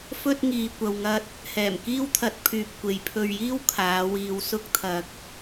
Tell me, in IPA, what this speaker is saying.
fɵ˥t̚ŋiː˧ kʷɐ˧wŋɐ˥t̚ | hɛː˨˩mkiː˥wt̪ʰɐ˧t̚ pʰyː˨p̚kʷe˨˧jpʰɵ˧ɥjiː˥w kʰaː˨˧ wiː˧wsʊ˥k̚t̪ʰɐ˧k̚

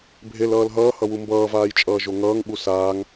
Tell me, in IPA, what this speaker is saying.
bʱelʌːl ɦʌːhʌwu mbʌːvaːjt͡ʃʼʌːʒo ŋʌːŋɓu saːŋ

